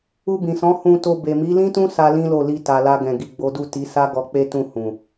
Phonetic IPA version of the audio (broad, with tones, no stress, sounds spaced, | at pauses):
u˧ b ĩ˨ s ɔ̃˨˦ h ũ˧ t o˧ b e˨ m i˨˦ l ĩ˦ t ũ˦ s a˦ l ĩ˦ l o˦˨ l i˧ t a˨ l a˧ ɡ ɛ̃˨ ɡ i˨ ɡ͡b o˨˦ d u˦˨ t i˨˦ s a˦ ɡ ɔ˧ k͡p e˦ t ũ˦˨ h ũ˨